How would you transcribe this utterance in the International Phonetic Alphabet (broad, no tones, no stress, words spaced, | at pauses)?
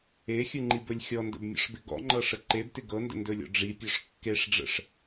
exʲɯŋ͡ǃibɵlʲ xʲɔndə̰bmʲɔ̰ʂbɪ ɡɔ̰ŋ͡ǃɤʂə ǃebtɪ ɡɤndə̰ndɵlʲɔ̰ ɖ͡ʐipʲɔʂ kːeʂɖ͡ʐə̰ʂ